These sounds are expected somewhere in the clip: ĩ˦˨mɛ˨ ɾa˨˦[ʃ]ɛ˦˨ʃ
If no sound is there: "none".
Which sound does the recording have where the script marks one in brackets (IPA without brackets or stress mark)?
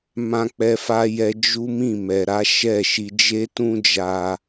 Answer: ʃ